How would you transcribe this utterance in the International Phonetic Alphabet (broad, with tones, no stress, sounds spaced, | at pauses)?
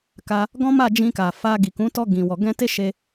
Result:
k a˧ | ɡ ɔ̃˦ m a˦˨ d͡ʒ ĩ˧ k a˨ f a˧ ɡ i˨ k ũ˨˦ t ɔ˧ ɡ ĩ˨ w ɔ˨ ɡ ɛ̃˧ t e˦ ʃ e˧